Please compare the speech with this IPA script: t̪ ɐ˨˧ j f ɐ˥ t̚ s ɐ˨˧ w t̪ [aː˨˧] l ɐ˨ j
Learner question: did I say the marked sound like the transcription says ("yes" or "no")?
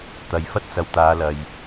yes